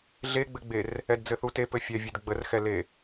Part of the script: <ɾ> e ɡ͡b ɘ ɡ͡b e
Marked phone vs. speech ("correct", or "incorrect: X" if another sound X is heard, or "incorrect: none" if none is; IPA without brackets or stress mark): incorrect: ɮ